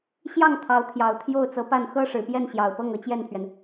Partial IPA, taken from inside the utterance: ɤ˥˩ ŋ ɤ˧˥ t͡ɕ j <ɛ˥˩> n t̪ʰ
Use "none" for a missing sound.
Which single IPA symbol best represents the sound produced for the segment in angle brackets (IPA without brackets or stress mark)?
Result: ɛ˥˩